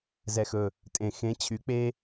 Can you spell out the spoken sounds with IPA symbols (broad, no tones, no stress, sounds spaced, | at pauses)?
z ɛ x ɵ | tʼ ẽ x ẽ t͡ɕʰ y k͡p e